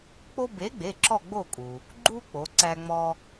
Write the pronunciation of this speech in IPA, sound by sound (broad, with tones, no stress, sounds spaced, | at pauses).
k͡p o˦ b e˨˥ ɡ͡b e˩˧˩ ǁ ɔ˦˨ ɡ͡b o˦˨ kʼ u˩ | ɡ͡ǃ u˦ k͡p o˩˧ ǀ æ˦ ŋ͡m ɔ˦